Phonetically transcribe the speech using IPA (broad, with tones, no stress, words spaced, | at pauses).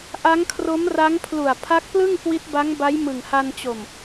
ʔa˦˥ŋkʰro˦˥mra˦˥ŋ pʰlu˨˩a̯pʰa˦˥k̚plɯ˥˩ŋ kwi˦˥t̚ba˦˥ŋba˦˥j mɯ˨˩ŋha˧nt͡ɕo˨˩m